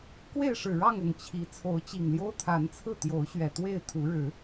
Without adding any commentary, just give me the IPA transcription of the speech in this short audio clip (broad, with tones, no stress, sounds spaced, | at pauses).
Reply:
k w e˥˨ ɪ̯ ʂ ɻ̩˨˩ ɻ ɑ˥˨ ŋ ʊ˨˩ ŋ t͡ɕʰ i˨˦ t͡sʰ o˨˦ ʊ̯ t͡ɕ i˨˩ ŋ l j o˦ ʊ̯ t̪ʰ a˨˦ n t͡sʰ ɹ̩˥˨ t̪ j o˨˦ ʊ̯ ɕ ɥ ɛ˨˩ t̪ w e˥˨ ɪ̯ t̪ʰ u˨˦ ɻ ɻ̩˨˦